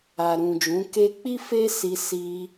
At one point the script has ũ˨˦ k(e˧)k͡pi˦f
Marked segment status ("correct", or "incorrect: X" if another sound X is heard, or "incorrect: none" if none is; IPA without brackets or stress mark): correct